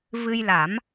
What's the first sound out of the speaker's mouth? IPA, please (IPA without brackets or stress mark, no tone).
v